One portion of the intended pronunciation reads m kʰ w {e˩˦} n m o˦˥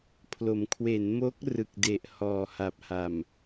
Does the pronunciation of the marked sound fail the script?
no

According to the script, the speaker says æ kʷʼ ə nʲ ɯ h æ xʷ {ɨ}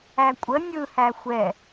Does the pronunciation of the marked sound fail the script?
yes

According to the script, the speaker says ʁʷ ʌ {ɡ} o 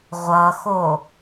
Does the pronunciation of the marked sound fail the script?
yes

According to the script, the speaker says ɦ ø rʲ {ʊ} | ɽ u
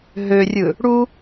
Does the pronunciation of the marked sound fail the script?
yes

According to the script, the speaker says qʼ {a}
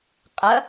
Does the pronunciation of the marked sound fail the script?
yes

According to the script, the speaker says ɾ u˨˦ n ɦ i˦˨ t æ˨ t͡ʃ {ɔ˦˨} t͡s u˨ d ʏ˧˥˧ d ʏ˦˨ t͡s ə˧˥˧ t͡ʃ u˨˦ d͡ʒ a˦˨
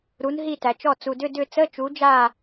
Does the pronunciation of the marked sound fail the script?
no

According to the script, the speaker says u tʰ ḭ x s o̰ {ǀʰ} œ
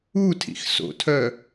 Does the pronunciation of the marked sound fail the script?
yes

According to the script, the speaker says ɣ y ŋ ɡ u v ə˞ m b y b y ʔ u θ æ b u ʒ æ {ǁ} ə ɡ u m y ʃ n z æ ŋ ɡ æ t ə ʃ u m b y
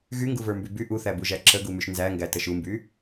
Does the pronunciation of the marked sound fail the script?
no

